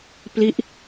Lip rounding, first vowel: unrounded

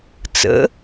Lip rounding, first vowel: unrounded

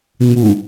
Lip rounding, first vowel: rounded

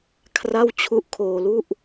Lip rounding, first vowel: unrounded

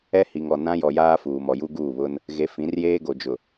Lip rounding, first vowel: unrounded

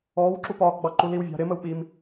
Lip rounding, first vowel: rounded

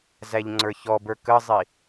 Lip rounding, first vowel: unrounded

